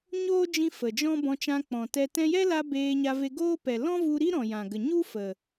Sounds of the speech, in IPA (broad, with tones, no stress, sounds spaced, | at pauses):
ɲ oː˦ d͡ʒ ĩ˧ f ə˨ d͡ʒ ɔ̃˦ b ɔ̃˧ t͡ʃ ã˧ k͡p ɔ̃˨ t ɛ˧ t ɛ̃˧ j ɛ˦ l a˧ b eː˧ ɲ a˧ v e˧ ɡ oː˦ p ɛ˨ l ɔ̃˦ v u˧ ɾ i˦ ɾ ɔ̃˨ j ã˨ ɡ ə˨ ɲ u˦ f ə˨